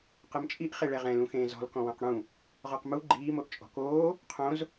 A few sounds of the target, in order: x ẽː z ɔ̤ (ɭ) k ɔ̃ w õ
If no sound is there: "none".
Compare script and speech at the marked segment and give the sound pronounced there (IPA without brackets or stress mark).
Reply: l